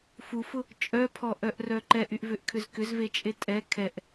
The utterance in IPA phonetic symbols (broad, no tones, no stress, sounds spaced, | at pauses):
f u f ʊ | t͡ʃʼ œ pʰ ɔ ʔ œ ʔ r œ ǃ ɛ ʔ y ʔ v ʏ ʔ kʰ ʏ z k ʏ z v e t͡ʃʼ e tʼ ɛ kʰ ɛ ʔ